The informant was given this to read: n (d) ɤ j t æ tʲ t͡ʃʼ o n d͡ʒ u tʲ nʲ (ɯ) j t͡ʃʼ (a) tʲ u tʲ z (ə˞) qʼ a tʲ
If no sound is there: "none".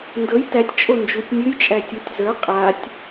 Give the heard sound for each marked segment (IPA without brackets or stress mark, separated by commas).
d, ɯ, æ, ə˞